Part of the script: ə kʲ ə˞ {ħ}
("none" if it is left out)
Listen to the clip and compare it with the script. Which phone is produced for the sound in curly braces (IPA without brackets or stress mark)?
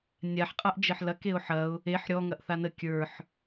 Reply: ħ